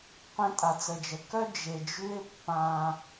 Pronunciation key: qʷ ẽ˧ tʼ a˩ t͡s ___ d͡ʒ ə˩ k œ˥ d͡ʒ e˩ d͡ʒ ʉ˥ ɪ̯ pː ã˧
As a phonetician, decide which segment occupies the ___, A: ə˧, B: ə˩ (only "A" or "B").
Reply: B